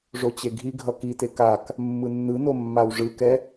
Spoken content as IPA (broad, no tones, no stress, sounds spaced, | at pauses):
ʐ o t͡ɕ e ɡʱ i ɡʱ ʌ k i t e k a k | mː ɯ nː ɯ n o mː a w ʐ ɯ k ɛ